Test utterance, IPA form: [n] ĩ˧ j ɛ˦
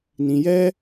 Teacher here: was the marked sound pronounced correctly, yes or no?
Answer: yes